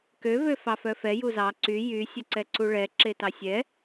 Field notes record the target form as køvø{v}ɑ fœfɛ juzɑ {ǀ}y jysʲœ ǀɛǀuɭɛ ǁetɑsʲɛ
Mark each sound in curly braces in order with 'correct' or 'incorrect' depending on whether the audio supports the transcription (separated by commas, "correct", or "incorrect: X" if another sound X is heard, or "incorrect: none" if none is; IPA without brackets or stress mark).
incorrect: f, correct